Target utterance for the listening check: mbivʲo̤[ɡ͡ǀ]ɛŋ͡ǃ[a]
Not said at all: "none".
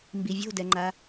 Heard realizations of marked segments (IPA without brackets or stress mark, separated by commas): d, a